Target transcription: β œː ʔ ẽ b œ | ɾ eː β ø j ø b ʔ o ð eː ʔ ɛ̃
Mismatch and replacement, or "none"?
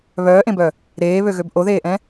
j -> ɣ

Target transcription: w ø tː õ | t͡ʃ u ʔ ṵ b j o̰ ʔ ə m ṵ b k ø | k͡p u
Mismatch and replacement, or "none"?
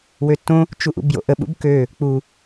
m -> ɓ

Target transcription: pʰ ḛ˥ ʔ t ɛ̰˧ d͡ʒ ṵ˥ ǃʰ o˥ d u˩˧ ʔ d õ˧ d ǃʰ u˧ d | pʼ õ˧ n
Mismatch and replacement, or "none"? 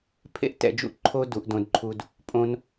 none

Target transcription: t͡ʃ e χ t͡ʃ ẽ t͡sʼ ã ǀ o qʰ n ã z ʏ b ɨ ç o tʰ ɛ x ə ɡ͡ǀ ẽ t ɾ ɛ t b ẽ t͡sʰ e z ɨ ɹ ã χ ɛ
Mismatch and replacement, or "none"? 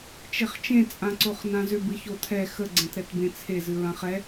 qʰ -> χ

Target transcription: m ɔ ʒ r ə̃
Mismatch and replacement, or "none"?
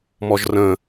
none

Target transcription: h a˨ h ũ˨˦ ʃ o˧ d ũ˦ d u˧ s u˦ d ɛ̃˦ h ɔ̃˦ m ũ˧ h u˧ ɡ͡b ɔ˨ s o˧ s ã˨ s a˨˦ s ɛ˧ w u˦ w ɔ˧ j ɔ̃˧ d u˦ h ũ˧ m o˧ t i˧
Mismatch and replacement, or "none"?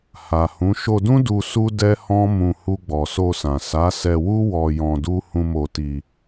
ɛ̃˦ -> ɛ˦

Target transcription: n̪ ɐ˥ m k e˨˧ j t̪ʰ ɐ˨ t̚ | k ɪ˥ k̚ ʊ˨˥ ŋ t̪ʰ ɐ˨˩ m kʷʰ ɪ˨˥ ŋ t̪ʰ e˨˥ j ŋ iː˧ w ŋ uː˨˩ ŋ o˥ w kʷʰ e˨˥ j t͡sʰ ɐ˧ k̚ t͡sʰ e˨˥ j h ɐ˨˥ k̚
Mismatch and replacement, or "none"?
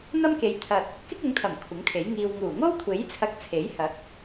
none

